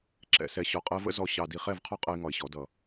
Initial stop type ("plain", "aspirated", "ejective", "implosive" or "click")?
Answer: click